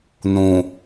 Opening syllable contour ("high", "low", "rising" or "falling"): low